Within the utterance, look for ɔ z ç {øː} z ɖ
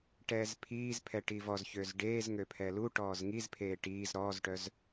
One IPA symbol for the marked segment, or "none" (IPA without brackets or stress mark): øː